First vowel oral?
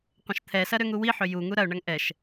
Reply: no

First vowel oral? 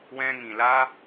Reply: no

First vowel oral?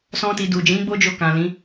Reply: no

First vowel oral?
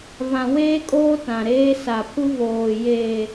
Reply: no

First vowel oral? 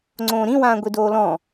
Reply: no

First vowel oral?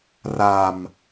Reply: yes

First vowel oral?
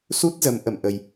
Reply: yes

